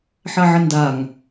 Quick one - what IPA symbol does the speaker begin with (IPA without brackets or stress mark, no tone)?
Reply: ħ